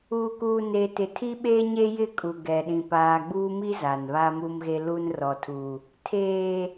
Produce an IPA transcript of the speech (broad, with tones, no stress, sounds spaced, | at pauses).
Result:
uː˨ k uː˨ n e˨ t ɪ˨ tʰ i˦ ɓ eː˦ ɲ e˦ j ɪ˦˨ kʼ u˨ ɡ ɛ˨ ɗ ĩ˨ p aː˨ ɡ͡b uː˦ m i˦ z a˨ n β a˦ m u˦ m ɣ e˦ l u˦ n r ɔ˨ tʰ u˨ | tʰ eː˨